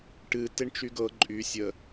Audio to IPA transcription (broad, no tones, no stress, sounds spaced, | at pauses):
ʈ ɨ t e ɳ t͡ʃ y ɡ ɤ ǃʼ y sʲ ə